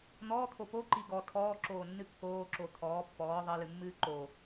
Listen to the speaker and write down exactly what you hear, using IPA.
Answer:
n̪ɔːt̪ʰo poǃi ɡɔ tʰɔːǁoːnːɨ kːoːǁo t̪ʰɔː pːɔː ðˤɜlɨmːɨː ǃo

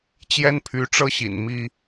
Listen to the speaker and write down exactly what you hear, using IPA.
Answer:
t͡ɕjɛ˦npʰy˨˦ʈ͡ʂɤ˦ ɕḭ˨˩nmi˦

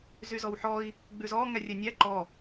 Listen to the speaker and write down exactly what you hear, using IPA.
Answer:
zyzɔwħɔi̯ | ɡ͡bʉzɔ ŋɛrʲɛnʲæ ǃɔ

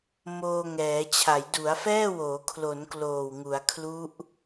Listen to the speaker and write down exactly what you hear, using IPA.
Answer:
moː˧ŋɛː˩˦t͡ɕʰa˩˦j du˩˦a̯fɛː˥˩woː˩˦ kʰlo˩˦n kloː˨˩wŋu˩˦a̯kʰlu˦˥ʔ

